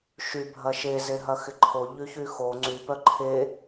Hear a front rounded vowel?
yes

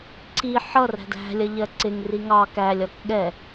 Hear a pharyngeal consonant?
yes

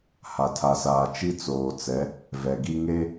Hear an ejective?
no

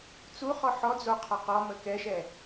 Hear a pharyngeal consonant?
yes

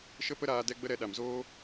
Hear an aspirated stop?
no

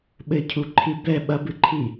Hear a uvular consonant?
no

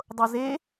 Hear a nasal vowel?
no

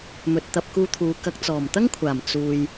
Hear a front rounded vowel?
no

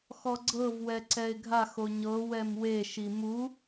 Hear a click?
yes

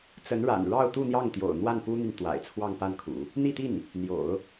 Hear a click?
no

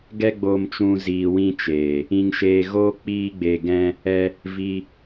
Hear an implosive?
no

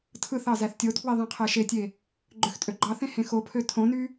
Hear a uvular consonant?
yes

